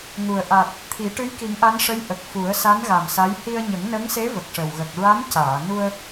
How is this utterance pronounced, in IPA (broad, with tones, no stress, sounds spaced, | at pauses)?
ŋ u˨˩ ə̯ ʔ a˨˩ t̚ | t̪ʰ i˨˩˦ ʈ ɨ˧˥ j k i˨˩˦ ŋ ʔ a˧˥ n ʂ ə˧˥ j ʔ ə˨˩ k̚ f u˨˩˦ ə̯ s a˧˥ n ɣ a˨˩ m s a˧˥ j h i˧ ə̯ ɲ ə˨˩˦ ŋ n ə˧˥ ŋ s e˧˥ v ə˨˩ k̚ ʂ ə˨˩ w ɣ ə˨˩ k̚ ɹ a˧˥ m c aː˨˩˨ n u˧ ə̯